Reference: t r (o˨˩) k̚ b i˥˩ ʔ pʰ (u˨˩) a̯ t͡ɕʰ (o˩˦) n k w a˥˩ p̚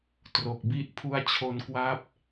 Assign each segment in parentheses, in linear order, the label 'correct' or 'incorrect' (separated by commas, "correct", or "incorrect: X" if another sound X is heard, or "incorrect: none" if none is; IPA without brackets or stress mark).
correct, incorrect: u˥˩, incorrect: o˦˥